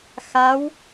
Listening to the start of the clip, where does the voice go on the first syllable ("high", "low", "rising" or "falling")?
rising